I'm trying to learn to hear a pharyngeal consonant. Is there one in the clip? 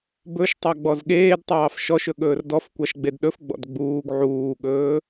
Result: yes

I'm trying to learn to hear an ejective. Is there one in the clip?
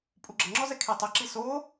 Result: yes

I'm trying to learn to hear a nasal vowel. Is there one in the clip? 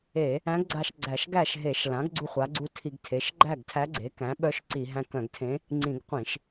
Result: yes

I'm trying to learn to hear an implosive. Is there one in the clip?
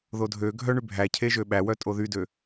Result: yes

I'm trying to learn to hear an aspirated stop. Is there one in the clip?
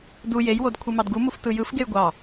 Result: yes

